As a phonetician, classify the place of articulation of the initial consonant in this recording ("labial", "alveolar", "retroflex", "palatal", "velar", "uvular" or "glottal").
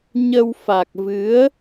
palatal